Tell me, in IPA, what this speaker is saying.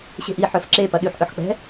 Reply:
ɕ e̤ ʔ i ħ œ f ǁ e p ɐ ɗ y ħ ʔ œ ħ k͡p ɛ̤

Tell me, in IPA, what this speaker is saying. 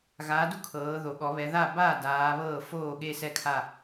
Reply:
ɣ aː˨˦ d u˥˩ kʰ ɤː˨˦ ð o˨˦ ɠ ɔ˨˦ β ɛ˨˦ ð a˥˩ b aː˥˩ d aː˨˦ β ɤː˥˩ f oː˥˩ ɠ e˥˧ s ɛ˥˧ kʰ a˥˧

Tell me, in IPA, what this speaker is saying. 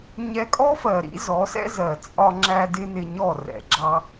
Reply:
ɲ ɛ˧ kʼ ɔ˦ f ɜ˨ ɾ ḭ˦ z ɔ˨˦ s ɛ̰˦ z ɜ˨ t͡sʼ ɒ˧ ŋ͡ǁ æ˧ d ɪ˦ n ɪ˧ ɲ ɔ˦˨ r ɛ̰˨ ɡ͡ǁ ɑ˧

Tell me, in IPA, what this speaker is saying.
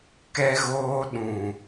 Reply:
k ɛ˦ ɣ oː˦ ɗ ũ˨

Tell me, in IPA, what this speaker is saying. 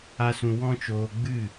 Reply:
a˦ s ũ˧ w ɔ̃˦ t͡ʃ oː˧ ɡ͡b ɨ˦˨

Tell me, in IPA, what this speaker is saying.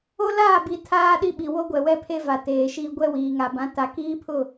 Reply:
o˦ l aː˦˨ b i˨ tʰ aː˦ ɗ i˦ ɓ i˨ w o˦ ɡʷ ɛ˨ w ɛ˦ pʰ e˦ v a˨ t eː˨ ʃ i˦ ɡʷ ɛ˦ w iː˨ ŋ a˨ b ã˨˦ t a˨ k iː˦ pʰ ʊ˦˨

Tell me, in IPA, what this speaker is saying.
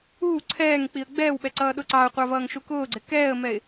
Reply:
uː ǀʰ ɛː ŋ k͡p i ə̯ ɡ͡b ɛː w ɓ ɛ ǀ ʌː ɗ ʊ ǀ ɑ ʊ̯ qʷ ɑ v ʌː ŋ ʃ u k ʊː ɡ͡ǀ ɪ k ɛː ə̯ m ɛ ɪ̯

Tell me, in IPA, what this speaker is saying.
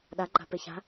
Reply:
ɗ a ɡ͡ǃ a̤ p e ç a̤

